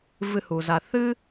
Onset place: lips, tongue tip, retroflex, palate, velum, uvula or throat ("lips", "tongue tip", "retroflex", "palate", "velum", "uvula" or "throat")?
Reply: lips